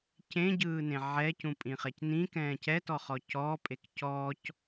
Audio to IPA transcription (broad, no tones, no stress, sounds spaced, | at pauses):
c ẽ ɟ ɯː n ẽ ʕ ɛ c ũ pʼ ĩ χ ɛ c n ĩ k ɛ̃ː c ɛ t ɔ χ ɔ c ɔː pʼ e k c ɔː c